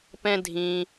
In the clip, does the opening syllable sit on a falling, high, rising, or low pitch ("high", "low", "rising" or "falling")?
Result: high